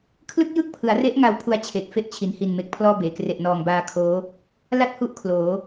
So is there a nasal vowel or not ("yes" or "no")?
no